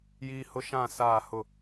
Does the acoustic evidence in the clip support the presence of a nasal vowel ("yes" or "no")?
yes